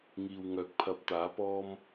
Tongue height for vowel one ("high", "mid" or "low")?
high